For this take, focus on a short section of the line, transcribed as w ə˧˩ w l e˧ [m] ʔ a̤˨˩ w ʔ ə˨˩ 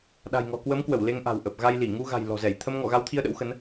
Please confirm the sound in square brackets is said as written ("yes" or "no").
no